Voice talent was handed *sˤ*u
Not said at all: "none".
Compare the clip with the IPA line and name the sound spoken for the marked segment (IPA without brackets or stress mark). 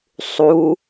sˤ